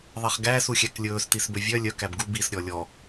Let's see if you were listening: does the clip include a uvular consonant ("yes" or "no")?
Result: yes